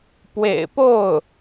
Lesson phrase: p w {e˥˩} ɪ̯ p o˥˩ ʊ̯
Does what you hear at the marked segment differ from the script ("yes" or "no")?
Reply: yes